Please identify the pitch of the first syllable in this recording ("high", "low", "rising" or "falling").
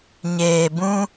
low